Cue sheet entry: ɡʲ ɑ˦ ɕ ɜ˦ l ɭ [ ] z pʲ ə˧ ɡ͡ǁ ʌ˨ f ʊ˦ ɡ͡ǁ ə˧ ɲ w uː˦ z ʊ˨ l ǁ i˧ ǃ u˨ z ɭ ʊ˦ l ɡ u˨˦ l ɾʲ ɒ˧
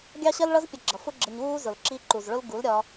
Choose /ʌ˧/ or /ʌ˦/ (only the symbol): ʌ˦